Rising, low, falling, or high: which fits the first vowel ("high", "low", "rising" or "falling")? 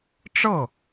falling